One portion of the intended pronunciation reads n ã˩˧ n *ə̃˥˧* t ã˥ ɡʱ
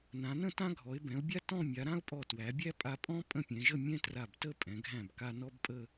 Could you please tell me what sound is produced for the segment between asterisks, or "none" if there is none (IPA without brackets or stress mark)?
ə̃˥˧